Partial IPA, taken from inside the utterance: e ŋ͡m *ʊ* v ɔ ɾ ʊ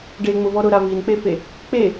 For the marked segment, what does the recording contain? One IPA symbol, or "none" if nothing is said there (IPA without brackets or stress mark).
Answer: ʊ